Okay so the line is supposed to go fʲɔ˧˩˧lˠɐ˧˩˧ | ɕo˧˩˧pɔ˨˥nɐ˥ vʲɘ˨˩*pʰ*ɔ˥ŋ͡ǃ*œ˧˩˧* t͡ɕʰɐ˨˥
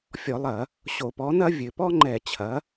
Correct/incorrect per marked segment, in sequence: incorrect, incorrect

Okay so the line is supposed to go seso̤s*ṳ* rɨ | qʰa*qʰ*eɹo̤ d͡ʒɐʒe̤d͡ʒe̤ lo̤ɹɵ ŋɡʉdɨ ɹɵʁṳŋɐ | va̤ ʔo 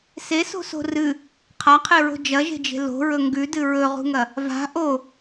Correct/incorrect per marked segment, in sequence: incorrect, correct

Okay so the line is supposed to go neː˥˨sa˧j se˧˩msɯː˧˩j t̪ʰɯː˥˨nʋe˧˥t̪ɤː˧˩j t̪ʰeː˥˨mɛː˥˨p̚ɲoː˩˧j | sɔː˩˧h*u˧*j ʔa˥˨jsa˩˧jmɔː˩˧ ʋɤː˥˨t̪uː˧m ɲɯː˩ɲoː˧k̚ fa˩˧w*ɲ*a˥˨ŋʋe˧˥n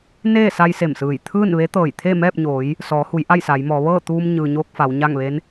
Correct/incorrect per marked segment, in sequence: incorrect, correct

